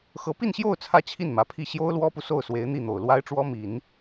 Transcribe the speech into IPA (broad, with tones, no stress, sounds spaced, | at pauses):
x ɤ˧˥ p i˥˧ n ɕ j o˥˧ ʊ̯ t͡sʰ ä˥˧ t͡ɕʰ i˥˩ n m ä˧˥ pʰ i˥˩ ɕ j o˥ ʊ̯ l w ɔ˥ p u˨ s o˥˩ ʊ̯ s w e˧˥ ɪ̯ n̪ i˥˩ n̪ o˨˩ ʊ̯ l w a˥ ɪ̯ ʈ͡ʂ w ɔ˥ m i˨˩˦ n